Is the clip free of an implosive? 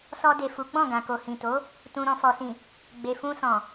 yes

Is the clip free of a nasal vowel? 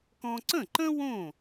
no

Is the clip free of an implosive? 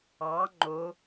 yes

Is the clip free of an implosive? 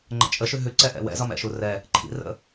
yes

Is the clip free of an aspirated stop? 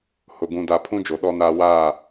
no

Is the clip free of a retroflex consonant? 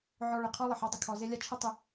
no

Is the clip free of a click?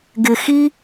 yes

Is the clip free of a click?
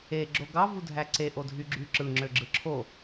no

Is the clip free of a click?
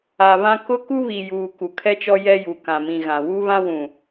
yes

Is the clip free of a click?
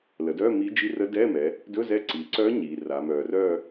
no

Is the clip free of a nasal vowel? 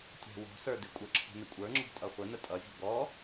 yes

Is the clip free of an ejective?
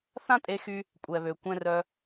no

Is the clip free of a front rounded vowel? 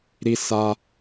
yes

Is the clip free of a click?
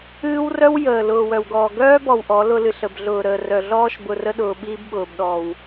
yes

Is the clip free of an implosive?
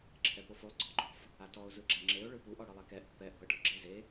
yes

